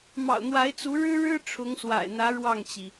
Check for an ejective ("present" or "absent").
absent